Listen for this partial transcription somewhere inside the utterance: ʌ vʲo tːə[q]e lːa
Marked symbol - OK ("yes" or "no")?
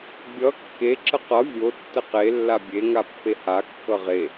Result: yes